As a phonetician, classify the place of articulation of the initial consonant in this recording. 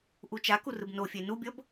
glottal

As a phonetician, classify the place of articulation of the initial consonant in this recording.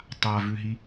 alveolar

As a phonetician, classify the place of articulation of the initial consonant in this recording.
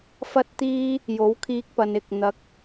labial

